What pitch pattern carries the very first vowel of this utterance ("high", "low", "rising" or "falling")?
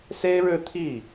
high